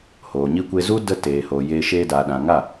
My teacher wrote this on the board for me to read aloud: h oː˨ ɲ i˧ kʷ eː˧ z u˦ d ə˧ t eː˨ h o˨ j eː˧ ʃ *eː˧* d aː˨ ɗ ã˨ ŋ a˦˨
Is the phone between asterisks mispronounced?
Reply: no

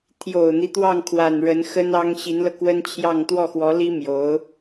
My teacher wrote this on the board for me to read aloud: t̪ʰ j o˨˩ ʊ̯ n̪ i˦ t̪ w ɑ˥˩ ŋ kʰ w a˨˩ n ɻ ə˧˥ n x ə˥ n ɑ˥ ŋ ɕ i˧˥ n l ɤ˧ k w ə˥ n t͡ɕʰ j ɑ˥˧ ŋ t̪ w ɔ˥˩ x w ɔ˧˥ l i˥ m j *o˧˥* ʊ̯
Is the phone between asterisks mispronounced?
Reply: no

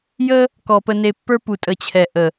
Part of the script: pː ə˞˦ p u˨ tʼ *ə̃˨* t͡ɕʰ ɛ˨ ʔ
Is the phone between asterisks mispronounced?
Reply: yes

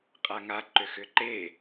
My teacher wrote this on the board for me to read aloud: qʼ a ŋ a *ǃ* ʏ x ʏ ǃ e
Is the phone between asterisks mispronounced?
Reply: no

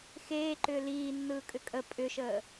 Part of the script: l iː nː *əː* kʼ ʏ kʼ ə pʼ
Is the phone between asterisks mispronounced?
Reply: yes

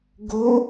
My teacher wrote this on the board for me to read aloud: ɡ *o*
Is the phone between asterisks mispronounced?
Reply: no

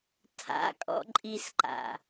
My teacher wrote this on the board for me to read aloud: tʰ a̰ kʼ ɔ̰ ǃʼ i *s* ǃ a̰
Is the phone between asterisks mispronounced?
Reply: no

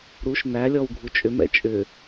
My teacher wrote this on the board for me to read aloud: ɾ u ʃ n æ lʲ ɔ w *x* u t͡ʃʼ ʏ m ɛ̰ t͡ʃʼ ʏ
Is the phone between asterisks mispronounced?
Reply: yes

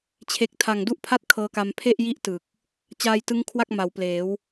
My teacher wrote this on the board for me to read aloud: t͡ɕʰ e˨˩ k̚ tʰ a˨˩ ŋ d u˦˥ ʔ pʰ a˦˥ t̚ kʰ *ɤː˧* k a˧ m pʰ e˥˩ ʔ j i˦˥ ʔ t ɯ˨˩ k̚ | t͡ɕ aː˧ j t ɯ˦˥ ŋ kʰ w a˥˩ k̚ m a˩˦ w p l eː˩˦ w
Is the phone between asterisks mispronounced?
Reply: no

